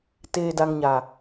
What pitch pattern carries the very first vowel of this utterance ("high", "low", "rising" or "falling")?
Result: low